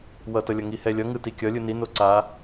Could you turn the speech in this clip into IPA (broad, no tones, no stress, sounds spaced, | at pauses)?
w ʌ t ʌ lʲ ʌ ŋ i h ɛ lʲ ʌ ŋ ɯ t i kʲ ʌ lʲ ɯ n i n o ǀ a